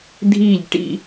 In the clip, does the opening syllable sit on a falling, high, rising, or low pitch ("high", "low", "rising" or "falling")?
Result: falling